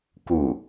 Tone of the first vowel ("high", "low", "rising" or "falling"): falling